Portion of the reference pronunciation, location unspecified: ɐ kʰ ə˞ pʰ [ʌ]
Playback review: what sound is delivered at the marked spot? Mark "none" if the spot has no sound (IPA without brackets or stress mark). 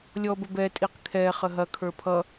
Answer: ʌ